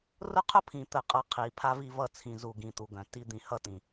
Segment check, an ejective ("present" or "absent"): present